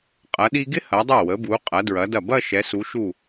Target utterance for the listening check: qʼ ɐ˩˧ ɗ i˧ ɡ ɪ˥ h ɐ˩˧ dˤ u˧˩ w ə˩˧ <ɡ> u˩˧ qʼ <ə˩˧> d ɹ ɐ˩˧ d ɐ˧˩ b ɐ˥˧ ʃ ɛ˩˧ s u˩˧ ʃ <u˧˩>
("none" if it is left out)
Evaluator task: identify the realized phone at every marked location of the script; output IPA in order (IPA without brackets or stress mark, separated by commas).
b, ɐ˩˧, u˧˩